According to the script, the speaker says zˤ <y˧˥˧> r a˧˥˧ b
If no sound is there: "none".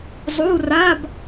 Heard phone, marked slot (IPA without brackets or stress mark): u˧˥˧